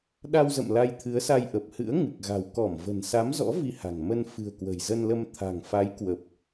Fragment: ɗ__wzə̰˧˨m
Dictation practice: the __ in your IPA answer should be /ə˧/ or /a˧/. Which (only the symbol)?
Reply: a˧